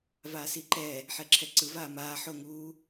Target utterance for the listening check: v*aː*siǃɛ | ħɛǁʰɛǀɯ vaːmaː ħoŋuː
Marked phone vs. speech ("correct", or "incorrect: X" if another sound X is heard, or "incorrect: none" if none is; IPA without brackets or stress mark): correct